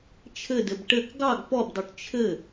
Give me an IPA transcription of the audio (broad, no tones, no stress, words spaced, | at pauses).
t͡ʃʰɘdɘb ʈɘk ɡɑɡ pɔbdˤuʈ t͡ʃʰɘ